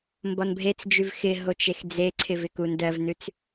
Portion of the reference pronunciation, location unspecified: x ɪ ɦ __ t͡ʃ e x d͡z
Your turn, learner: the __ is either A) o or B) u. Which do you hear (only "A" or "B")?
A